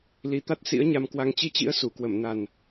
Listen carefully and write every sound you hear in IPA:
li˨˦t̪a˦˥t̚ sḭ˧˥ə̯ɲa˧mkwa˧ŋ t͡ɕi˧t͡ɕḭ˧˥ə̯ su˧˩kwə˧˩m na˨˩n

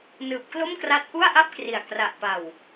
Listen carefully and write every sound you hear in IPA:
nɯː˨˩p̚klo˥˩mkra˦˥t̚ ʔu˥˩a̯ʔa˥˩p̚kri˨˩a̯ kra˨˩ʔpa˨˩w

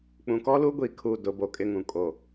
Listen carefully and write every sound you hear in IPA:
k͡pũ˨kɔ˦lu˦ɡʷi˨ kʰu˨ dʊ˨˦bo˨kʼɪ˦ŋũ˨ kʼo˨

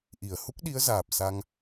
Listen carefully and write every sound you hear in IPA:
ʔi˧˩ə̯ hu˦˥k̚ɗi˨˦ə̯zaː˨˩p̚ sa˧ŋ

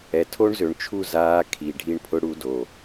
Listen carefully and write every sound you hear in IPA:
ɛ˨tʰo˦ɳzø˨ɳt͡ʃʰu˦˨ zaː˧ kʰi˨ ɖʱi˧ɳpʰʊ˧ ɽu˧do˨

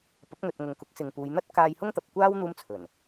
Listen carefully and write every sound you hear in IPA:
pɐ˨˥p̚ŋɵ˨t̚ ŋʊ˨ŋkʊ˨˥k̚sɪ˨ŋ puː˨˧jn̪ɐ˥t̚ kaː˧j hʊ˥ŋt̪ɐ˨p̚kʷaː˥w n̪uː˥mt͡sʰɵ˨˩n

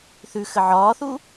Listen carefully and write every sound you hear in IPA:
θʉxə ʕɒːθu

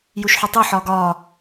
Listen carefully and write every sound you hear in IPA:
juʃħutˤo ħɒːɡɒː

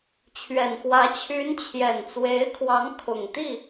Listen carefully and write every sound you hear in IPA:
t͡ɕʰɥɛ˨˩nxwä˧˥ t͡ɕʰy˧˥nt͡ɕʰjɛ˨˩nt͡swe˧˥ɪ̯kʰwɑ˧˥ŋ kʰʊ˨˩ŋt̪i˥˩

